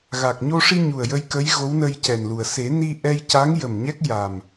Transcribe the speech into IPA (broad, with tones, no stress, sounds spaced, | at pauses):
ɣ a˨˩ k̚ ɲ o˧ ʂ i˧ ɲ u˨˩ ə̯ j ə˧ j k ə˧˥ j ɣ o˧˥ w n ə˧ j c ɛ˨˩ n l u˨˩ ə̯ s e˨˩˦ n i˧ ʔ ɛ˧ j c a˧˥ ŋ j ə˨˩ m ɲ ɛ˦˥ k̚ j a˨˩ m